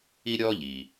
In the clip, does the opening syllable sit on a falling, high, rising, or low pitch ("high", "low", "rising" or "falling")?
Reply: high